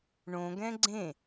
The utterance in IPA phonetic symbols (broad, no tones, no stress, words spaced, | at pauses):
ɳõɡɛ̃ ɡ͡ǀẽ